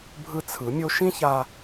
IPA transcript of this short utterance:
bʱ ɯ˧ t͡sʰ ɯ˩˧ mʲ o˧ ʃ ĩ˥ ç a˧

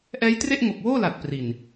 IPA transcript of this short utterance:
ʔ ɛː˦˥ j t r e˥˩ ʔ ŋ o˨˩ k̚ w oː˥˩ l a˨˩ t̚ p r i˨˩ n

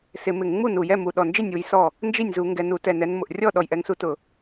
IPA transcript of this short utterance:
s ɪ˧˩˧ m ɪ˧˩˧ ŋ ŋ͡m u˥˩ n u˨˩ j ɛ˥˩ m u˨˩ ɗ ɔ˨˩ n d͡ʒ ɪ˥˩ nʲ u˨˦ j s ɔ˥˩ | n d͡ʒ i˥˩ nʲ z u˧˩˧ ŋ ɡ ɛ˨˩ n u˧˩˧ t ɛ˨˩ n ɛ˨˦ n m ʊ˨˩ ʔ rʲ ɔ˥˩ ɗ ɔ˨˩ j ʔ ɛ˨˦ ŋ s u˨˦ t ʊ˧˩˧

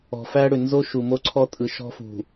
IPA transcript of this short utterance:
ɔ̤˨ f æ˦ ɽ ʏ˨ n z o˦ ʃ u˨ m o˦ ǀʰ ɔ˦ tʼ ɯ˨ ʃ ɔ̤˦ f ṳ˨

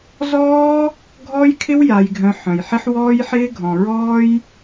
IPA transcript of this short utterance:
z ɔː˦ | ɡʱ ɔ˦ j kʰ ɪ˦ w j a˧ j ɡʱ œ̃˧ ħ œ̃˨ j ħ ɪ˦ ħ w ɔː˦ j ħ ɪː˦ ɡʱ ɔ̃˨ ɹ ɔː˦ j

